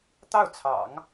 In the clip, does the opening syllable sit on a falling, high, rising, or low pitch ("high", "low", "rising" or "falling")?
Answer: falling